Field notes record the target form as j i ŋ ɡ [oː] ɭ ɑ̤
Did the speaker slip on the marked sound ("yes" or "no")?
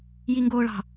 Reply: no